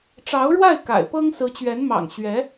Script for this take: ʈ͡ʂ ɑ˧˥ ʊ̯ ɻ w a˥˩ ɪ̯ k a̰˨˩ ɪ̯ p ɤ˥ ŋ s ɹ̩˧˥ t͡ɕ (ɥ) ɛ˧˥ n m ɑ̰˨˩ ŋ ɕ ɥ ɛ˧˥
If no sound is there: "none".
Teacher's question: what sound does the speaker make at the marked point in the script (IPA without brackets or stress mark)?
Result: ɥ